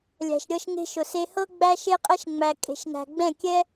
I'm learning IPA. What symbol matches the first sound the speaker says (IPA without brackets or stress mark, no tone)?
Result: lʲ